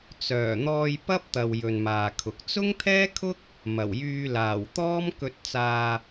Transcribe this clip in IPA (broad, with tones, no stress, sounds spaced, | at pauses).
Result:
t͡s œː˨˩ n̪ ɔː˧ j p ɐ˥ p̚ t̪ ɐ˨ w j ɵ˨ n m aː˨ kʰ ʊ˨ k̚ t͡s ʊ˥ ŋ t̪ʰ ɛː˥ kʰ ʊ˥ k̚ | m ɐ˨˩ w j yː˧ l aː˨˩ w t̪ ɔː˥ m k ɵ˧ t̚ t͡s aː˧